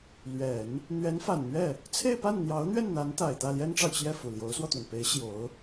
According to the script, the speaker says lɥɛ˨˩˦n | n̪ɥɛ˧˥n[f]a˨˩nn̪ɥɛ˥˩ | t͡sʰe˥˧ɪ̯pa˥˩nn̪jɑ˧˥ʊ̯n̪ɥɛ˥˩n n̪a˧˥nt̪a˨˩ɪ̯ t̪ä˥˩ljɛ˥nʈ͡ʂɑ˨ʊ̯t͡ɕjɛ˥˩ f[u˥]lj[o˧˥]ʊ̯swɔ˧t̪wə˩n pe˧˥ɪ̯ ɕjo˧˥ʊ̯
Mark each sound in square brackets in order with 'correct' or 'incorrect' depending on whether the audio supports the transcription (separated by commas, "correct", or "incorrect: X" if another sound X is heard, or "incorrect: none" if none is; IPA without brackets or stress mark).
correct, incorrect: u˨˩, correct